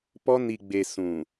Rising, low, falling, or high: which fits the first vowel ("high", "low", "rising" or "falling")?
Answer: high